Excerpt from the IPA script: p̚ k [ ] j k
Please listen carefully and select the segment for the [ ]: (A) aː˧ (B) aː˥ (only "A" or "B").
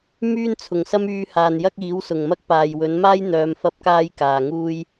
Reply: A